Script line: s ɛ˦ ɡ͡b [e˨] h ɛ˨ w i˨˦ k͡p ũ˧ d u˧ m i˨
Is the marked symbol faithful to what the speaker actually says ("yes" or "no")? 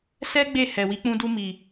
no